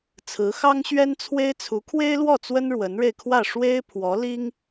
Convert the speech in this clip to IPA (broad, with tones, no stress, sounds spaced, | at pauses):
t͡sʰ ɹ̩˧˥ x ɑ˥ ŋ ɕ ɥ ɛ˥ n t͡sʰ w e˥ ɪ̯ t͡sʰ u˧˥ kʰ w e˥ ɪ̯ l w ɔ˥˩ t͡s w ə˥ n ɻ w ə˧˥ n ɻ e˧ ɪ̯ kʰ w ä˥˩ ʂ w e˥ ɪ̯ pʰ w ɔ˧˥ l i˥ ŋ